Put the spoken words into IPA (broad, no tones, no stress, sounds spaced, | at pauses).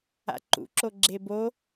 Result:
a̰ ǃ ṵ ǁ o ɡ͡ǁ e b o